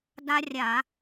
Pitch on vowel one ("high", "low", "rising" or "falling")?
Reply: high